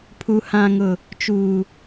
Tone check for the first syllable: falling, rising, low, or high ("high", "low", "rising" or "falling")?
low